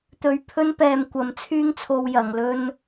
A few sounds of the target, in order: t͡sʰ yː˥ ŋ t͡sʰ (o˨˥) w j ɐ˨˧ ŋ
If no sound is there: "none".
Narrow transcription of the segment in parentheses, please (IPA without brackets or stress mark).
o˧